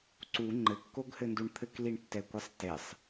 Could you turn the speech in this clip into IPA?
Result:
ǀ u ŋ͡ǃ ɘ kː o ɡ h ɘ n d u ɳ t̪ʰ ɘ k l i ɳ tː ɛ kʷ ɛ sˤ t e sˤ

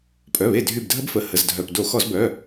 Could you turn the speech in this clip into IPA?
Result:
pʼ œ˩˧˩ β e˧˩ dʱ y˧˩ b dʱ ə˦˥ b f ə˩˧˩ h ə˩˧˩ z dʱ œ˩˧˩ p d o˧˩˧ x ɔ˧˩˧ z b œ˩˧˩

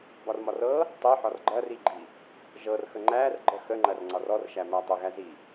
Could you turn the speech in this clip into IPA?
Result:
b ɒ r m ɒ r ɤ | tˤ i ħ ɒ r ɡ͡ǃ ɐ r i ɡ͡ǃ i | ʒ ɤ r x ə ŋ͡ǃ æ r ɡ͡ǃ ə x ə ŋ͡ǃ ɐ r ŋ͡ǀ ɒ r ɔ r ʃ æ m æ tˤ ə ɣ æ z i

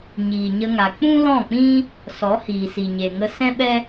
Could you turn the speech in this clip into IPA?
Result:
ɲ iː˨ ɲ ə˧ ŋ a˨ k͡p ũ˦ l ɔ̃˦˨ k͡p ĩ˦ | s ɔ˨˦ h iː˨ s i˨ ɲ e˨ ŋ ə˧ s ɛ̃˦ ɓ ɛ˦

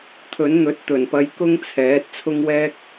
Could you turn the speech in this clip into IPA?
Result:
t̪ʰ ɵ˨˥ n n̪ ɵ˨˥ t̚ t̪ ɵ˨˩ n p ɐ˧ j k ʊ˥ ŋ t͡sʰ ɛː˨˥ t̚ t͡sʰ ʊ˥ ŋ w ɛː˥ k̚

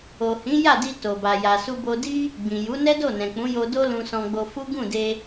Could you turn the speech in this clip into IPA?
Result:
o˨ h ĩ˨˦ j a˦˨ d i˧ t o˨ b a˨ j a˨ s u˧ b o˧ d i˦ | ɡ͡b ĩ˨ j u˨˦ n ɛ˦ d o˦˨ n ɛ̃˨ k͡p ũ˨˦ j o˧ d o˦ l ũ˧ s ɔ̃˧ ɡ͡b o˧ f u˦ ɡ ũ˦˨ d e˧

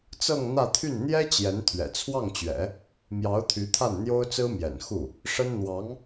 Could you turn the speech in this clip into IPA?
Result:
t͡s ɤ˥˧ ŋ n̪ ä˥˧ t̪ʰ y˥˩ n n̪ j ɛ˥ t͡ɕ j ɛ˧˥ n t̪ʰ ɥ ɛ̰˨˩ t͡sʰ w ɑ˥˩ ŋ t͡ɕ ɥ ɛ̰˨˩˦ | m j ɑ˧˥ ʊ̯ t̪ʰ y˧˥ t̪ʰ a˥˩ n n̪ j o˥ ʊ̯ t͡s ɹ̩˥ m j ɛ̰˨˩ n x u˥˩ | ʂ ə˥ n n̪ w ɑ˧˥ ŋ

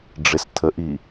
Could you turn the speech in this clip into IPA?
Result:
ɖ͡ʐ ɪ s tʰ ə ʔ i

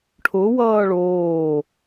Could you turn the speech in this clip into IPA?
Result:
ʈʰ ʊ w ʌː ɭ oː

